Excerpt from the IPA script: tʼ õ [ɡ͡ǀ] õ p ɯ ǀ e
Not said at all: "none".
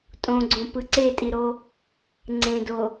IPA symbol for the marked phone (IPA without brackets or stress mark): ɡ͡ǀ